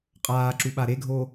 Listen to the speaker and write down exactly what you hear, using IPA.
qʼ aː ǁ u ɓ a ɾ e ɡʱ o

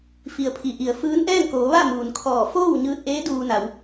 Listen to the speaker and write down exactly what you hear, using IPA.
f i˩ ə̯ pʰ i˩ ʔ i˩ ə̯ f ɯː˧˥ n ʔ ɛː˥˨ ŋ k oː˩˧ ʋ a˥˨ m uː˩ n kʰ ɔː˧˩ f oː˥˨ w ɲ ɯː˧ t̚ ʔ eː˧˥ d uː˧ n a˩˧ w

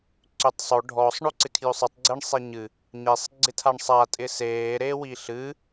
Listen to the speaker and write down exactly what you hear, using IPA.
ǀ ʏ tˤ sˤ o ɖʱ ɔ sˤ ɳ o ǀ ɪ kʰ j ʏ sˤ ɨ tˤ ɡ͡ǀ e ɳ sˤ e ɲ ɨ | ɲ e sˤ ɡ͡ǀ ɪ tʰ a ɳ sˤ a tʼ ɪ s eː ɾ e w i ɬ ɨ

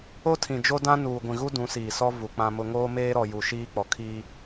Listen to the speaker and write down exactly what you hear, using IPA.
o˦ tʰ ĩ˨ d͡ʒ o˦ d ã˦ n uː˨ ɡʷ ĩ˨ ɣ u˦ d ũ˨˦ s iː˨ s ɔ˦ v u˨ k͡p ã˦ m ʊ˦ ŋ oː˦ m eː˦ ɾ ɔ˨ j u˨ ʃ iː˦ k͡p ɔ˨ kʰ iː˦

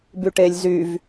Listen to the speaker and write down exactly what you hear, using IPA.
b y ʈ e lʲ z y v

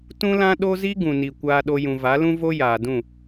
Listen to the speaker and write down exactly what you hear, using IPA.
t ũ˦ l ã˦ ɗ o˦ z i˦ ɡ ũ˨ n i˨ kʷ aː˧ ɗ o˧ j ũ˨ v a˨˦ l ũ˦ v o˦ j aː˨ d ũ˦˨

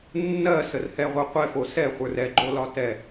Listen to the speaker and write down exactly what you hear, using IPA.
nː ɜ s ə r h ɛ ʁʷ ə˞ qʷ ɛ f o s ɛ χʷ ə˞ r ɛ ɡ͡ǃ o l ɒ t ɛ

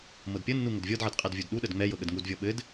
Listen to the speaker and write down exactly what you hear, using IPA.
m ɤ d pʲ ə nː u ŋ ə d vʲ ɤ d ʕ ə d qʼ ɛ d vʲ u d ɗ u ɗ ə d ŋ͡m ɛ j ɤ ɠ ə d ŋ u d vʲ ɤ ɓ ɘ d

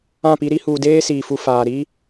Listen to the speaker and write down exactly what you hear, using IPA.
ã˦˨ p i˦ ɾ i˦ h uː˨ d eː˦ s iː˨ f u˨ f aː˨ ɾ iː˦

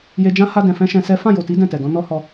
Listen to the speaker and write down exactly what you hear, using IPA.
j e˧ d͡ʒ ã˦ h a˧ d ɛ̃˨ f ɛ̃˧ ʃ ɛ̃˧ s ɛ˦ f ã˦˨ j o˨ t i˨˦ d ɛ̃˦˨ t ɛ˨ d ɔ̃˨˦ n ɔ˦ h ɔ˧

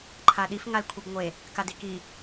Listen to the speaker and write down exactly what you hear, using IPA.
ǃʰ a ɗ i f ŋ a l kʷʰ i b ŋʷ e | k a d i k i

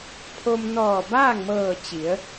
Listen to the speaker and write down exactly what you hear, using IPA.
pʰ o˧ m n ɔː˧˩ b aː˥˨ ŋ m ɤː˧˩ t͡ɕ i˩˧ ə̯

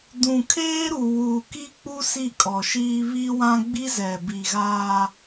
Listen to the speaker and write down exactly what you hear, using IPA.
d ũ˨ kʰ eː˦ ɾ u˨ w uː˨ k i˦ k͡p u˦ s i˦˨ kʼ ɔ˨ ʃ iː˦ β i˦ w ã˦ ɡ͡b i˦ z ɛ˨ b i˨ ɣ aː˦

